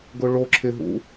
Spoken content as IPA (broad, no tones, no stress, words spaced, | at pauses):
ɡʊɭo ǁʰɪ ɦṵ